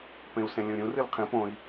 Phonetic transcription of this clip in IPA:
pẽu̯sẽlʲũɾʲũ rɨlqʰĩ põi̯

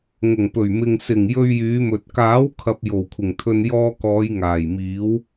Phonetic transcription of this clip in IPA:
ŋʊ˨˩ŋpɵ˨˩ɥmɪ˨ŋ sɪ˨˩ŋ jɵ˧ɥjyː˨˧mɵ˨t̚ kaː˨˥wkʰɐ˨p̚ jo˨˩wkʷʰɪ˨˩ŋt̪ʰɵ˧n jɔː˧kɔː˨˧j ŋaː˨˩jmiː˨˥w

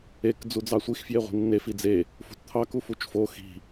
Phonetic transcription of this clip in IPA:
ek d͡zud͡zɑsʷix fjeʁʷi̤nːe fid͡ze | fṳtt̪ʰɑ kufut͡ʃfo xi̤

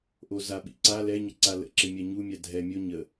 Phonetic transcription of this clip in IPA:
ʔozaɓḭ ǀa lɛɲə ǀalə̰ǁɪ mʲaɲumʲa dʱɛ mʲo ɲə

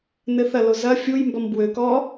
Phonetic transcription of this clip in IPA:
nɘθɐ lozɐ fʲuj mbɔmbwø kɔ

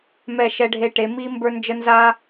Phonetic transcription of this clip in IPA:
mɛ˦˨ʃɛ˦ɖʱe˦ʈe˨˦ mi˦ mbə˞˦nd͡ʒə˦ nza˦

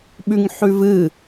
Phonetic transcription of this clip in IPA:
ɓʉŋħʉvɨ

